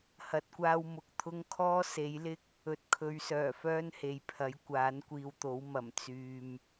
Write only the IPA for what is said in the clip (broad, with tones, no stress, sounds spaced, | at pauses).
h ɐ˨ t̚ kʷ aː˧ w m ʊ˨ k̚ t̪ʰ ʊ˥ ŋ kʰ ɔː˥ s e˨˥ j l ɪ˥ k̚ | ɵ˨ t̚ kʰ ɵ˨˧ ɥ s œː˨˩ f œː˥ n h e˨ j pʰ ɐ˨˥ j kʷ aː˨˥ n kʷ iː˧ w t̪ o˨˥ w m ɐ˨˩ m t͡s yː˨ m